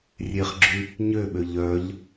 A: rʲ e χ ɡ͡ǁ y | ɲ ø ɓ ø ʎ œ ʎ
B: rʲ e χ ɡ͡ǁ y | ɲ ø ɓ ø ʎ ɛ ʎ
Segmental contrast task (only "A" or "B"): A